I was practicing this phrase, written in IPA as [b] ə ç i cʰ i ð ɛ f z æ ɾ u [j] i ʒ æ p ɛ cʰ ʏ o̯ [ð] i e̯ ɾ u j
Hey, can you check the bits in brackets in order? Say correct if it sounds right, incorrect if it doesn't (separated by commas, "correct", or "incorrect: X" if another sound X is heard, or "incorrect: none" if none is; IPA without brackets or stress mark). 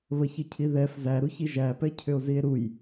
incorrect: β, incorrect: ç, incorrect: z